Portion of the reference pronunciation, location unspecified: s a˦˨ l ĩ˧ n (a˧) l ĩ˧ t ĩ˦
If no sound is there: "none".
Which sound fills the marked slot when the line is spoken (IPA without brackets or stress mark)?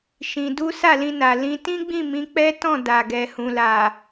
a˨